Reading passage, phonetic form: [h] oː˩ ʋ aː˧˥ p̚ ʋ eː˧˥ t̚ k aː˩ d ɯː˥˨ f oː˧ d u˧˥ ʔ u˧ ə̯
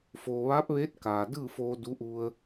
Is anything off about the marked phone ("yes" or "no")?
yes